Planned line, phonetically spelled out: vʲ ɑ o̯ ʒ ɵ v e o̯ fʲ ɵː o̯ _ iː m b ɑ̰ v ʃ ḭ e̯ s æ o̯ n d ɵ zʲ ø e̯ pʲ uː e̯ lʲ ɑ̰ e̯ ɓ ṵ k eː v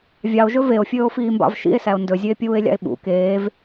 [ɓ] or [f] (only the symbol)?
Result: f